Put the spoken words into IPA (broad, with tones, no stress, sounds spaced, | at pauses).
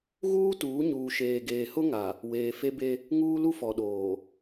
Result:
ɣ uː˦ t uː˨˦ ɲ uː˨ ʃ eː˨ ɡ eː˨ h ʊ˦ ŋ a˨ | w eː˨ f e˦ b e˦ | ŋ uː˦ l u˦ f ɔ˨ ɗ oː˨